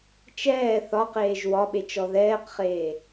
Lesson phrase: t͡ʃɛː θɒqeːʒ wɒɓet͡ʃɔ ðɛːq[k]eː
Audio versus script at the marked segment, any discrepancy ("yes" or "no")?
yes